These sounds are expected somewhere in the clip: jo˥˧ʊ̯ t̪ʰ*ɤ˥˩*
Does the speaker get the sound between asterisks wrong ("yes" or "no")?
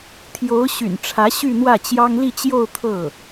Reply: no